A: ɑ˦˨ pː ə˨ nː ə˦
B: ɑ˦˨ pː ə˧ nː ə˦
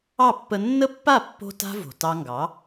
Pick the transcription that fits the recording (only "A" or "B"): B